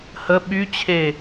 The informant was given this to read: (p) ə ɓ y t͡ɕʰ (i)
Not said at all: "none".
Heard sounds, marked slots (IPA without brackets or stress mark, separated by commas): h, e